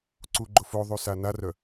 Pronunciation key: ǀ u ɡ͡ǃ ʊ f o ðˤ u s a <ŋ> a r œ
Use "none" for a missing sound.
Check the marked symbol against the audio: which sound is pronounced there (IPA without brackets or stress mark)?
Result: n